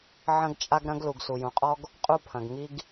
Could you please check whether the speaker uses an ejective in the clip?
yes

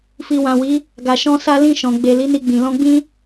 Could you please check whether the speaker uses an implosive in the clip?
no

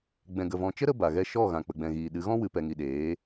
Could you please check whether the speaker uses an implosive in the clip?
yes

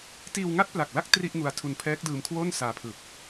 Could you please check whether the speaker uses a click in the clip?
no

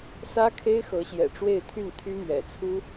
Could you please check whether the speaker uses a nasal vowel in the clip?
no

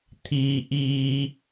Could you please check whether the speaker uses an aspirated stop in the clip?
yes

